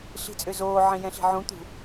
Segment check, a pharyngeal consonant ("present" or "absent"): present